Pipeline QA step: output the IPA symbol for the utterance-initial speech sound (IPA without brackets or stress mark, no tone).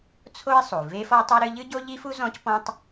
t͡sʰ